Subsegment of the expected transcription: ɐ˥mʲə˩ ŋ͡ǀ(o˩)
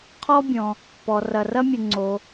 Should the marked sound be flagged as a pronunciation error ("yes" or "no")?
no